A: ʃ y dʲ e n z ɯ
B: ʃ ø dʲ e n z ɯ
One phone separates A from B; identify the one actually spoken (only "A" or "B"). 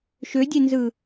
B